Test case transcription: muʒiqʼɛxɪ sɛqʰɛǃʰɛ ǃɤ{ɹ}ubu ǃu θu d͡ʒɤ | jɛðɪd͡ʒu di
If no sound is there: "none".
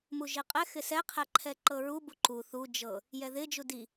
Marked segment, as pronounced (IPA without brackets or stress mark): ɹ